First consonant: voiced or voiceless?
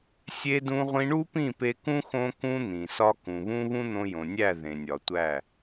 voiceless